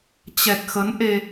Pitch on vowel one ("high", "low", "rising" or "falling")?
low